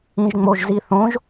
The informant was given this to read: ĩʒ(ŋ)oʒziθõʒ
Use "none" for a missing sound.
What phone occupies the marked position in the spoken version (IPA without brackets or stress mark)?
ŋ͡m